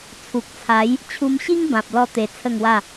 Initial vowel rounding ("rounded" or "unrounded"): rounded